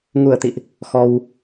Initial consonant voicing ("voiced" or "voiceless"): voiced